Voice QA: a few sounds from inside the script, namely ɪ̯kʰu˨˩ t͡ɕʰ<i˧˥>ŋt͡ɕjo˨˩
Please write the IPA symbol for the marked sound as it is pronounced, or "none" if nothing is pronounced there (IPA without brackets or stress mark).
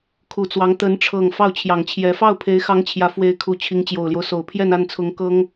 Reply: i˧˥